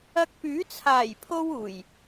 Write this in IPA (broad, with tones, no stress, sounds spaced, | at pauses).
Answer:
ɐ˧ k̚ p yː˨˥ t͡sʰ aː˨˩ j pʰ o˧ w uː˨˩ j